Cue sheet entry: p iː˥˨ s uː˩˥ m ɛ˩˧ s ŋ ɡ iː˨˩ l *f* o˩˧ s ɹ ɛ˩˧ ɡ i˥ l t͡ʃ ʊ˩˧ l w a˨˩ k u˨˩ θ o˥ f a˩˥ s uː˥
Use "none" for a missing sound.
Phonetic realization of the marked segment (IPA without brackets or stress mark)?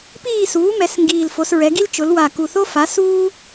f